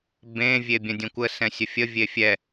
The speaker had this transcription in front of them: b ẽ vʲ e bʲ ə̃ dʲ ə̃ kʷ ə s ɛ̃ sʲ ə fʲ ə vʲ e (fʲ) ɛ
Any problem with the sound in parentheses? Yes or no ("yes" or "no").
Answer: no